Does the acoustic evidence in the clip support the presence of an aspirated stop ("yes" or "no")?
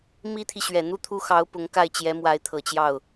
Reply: yes